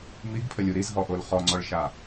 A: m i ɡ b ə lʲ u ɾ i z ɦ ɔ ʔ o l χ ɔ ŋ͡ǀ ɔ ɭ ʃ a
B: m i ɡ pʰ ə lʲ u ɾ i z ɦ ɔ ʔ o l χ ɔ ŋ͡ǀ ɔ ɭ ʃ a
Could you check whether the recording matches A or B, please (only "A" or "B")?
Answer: B